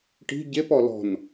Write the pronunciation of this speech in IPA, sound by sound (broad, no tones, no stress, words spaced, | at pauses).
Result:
ʈi̤ ɟepɔ lɔ̤n